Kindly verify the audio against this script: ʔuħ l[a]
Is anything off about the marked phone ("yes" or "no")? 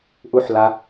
no